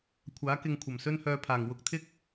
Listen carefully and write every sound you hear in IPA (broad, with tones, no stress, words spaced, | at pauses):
kʷʰaː˨˥kɪ˧ŋkʷʰɐ˨˩m sɵ˥nhœː˧pʰaː˨˩ŋ wʊ˧k̚t̪ʰɪ˥k̚